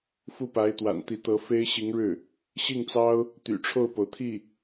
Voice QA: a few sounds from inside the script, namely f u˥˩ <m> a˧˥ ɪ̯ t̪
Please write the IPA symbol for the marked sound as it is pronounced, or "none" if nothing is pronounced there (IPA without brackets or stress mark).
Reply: p